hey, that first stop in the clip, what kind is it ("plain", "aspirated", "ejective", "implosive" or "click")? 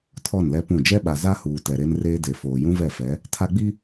aspirated